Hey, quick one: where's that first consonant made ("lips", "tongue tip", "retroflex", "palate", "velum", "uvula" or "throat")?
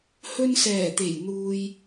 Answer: throat